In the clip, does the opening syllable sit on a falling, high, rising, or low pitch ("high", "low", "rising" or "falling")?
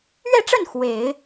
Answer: falling